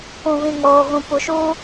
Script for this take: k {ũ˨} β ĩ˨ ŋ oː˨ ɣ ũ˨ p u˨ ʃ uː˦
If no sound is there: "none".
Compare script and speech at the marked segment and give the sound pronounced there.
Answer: ũ˨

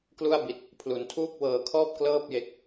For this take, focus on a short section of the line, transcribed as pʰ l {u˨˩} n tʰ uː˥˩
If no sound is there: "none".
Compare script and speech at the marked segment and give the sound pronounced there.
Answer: u˨˩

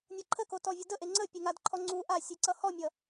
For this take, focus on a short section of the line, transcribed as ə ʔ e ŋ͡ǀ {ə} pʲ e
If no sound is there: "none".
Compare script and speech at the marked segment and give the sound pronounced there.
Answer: ə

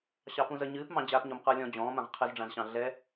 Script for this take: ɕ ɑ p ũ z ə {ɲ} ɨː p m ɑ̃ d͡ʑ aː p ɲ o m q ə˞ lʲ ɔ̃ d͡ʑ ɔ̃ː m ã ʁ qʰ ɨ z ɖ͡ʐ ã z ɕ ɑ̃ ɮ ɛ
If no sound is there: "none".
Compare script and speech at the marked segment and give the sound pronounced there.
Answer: ɲ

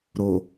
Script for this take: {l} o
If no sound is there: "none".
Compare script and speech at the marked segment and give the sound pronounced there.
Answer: ɾ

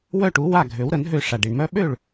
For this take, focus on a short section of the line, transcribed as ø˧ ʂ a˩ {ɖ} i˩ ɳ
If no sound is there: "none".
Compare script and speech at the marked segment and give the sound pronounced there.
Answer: ɖ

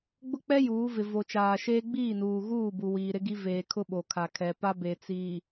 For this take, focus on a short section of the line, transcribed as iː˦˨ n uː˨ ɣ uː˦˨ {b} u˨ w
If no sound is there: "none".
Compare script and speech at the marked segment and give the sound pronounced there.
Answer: b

